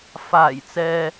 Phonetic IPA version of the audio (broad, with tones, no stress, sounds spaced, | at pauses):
f aː˨˩ j t͡s ɛː˨